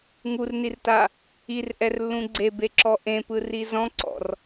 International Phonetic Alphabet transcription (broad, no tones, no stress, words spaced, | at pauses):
ŋurnirta | irʔɛrlːũ ɡ͡ǀebeǁɔ ʔẽpɯri zɔ̃ǀɔ̰r